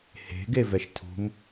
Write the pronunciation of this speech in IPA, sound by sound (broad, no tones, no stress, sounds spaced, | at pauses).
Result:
h e̤ ɡ e v ɛ ʃ tʰ ṳ m